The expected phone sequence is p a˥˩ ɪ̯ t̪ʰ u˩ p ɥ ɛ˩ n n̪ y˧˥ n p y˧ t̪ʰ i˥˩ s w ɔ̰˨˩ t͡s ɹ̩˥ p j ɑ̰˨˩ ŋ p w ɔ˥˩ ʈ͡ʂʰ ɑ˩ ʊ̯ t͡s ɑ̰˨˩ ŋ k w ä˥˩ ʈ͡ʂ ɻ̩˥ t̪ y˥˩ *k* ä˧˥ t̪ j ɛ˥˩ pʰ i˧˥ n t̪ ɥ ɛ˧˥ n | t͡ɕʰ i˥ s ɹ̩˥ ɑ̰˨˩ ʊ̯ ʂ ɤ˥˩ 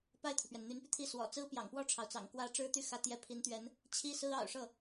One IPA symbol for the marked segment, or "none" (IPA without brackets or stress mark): x